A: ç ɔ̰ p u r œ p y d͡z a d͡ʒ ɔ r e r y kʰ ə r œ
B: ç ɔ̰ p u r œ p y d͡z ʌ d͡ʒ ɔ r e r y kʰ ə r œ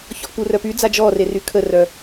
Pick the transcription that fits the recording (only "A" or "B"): A